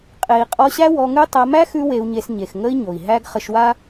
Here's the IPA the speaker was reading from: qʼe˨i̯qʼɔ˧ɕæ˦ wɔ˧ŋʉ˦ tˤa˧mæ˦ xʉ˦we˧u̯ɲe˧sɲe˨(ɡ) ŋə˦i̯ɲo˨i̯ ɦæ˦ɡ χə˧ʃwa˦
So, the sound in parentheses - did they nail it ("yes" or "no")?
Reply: no